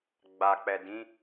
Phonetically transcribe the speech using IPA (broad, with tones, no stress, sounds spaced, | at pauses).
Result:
ɡ͡b a˨ k͡p ɛ˨ d ĩ˨˦